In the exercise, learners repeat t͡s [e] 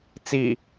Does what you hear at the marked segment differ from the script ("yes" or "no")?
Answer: yes